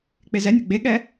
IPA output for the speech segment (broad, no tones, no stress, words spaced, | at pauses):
k͡pezɛnʲe ɡ͡beɠɛ